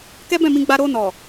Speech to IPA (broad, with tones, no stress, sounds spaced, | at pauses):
k ɛ˦ b ɛ̃˦˨ m ĩ˧ ɡ͡b a˧ ɾ o˧ n ɔ˨